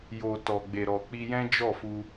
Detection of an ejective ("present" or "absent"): absent